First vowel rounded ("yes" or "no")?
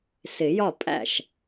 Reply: no